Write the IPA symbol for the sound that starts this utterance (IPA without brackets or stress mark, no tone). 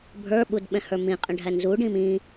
bʱ